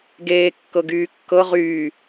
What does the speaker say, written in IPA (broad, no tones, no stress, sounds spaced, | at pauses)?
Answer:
ɡ eː kː ɤ ɡ yː kː ɤ ʁ yː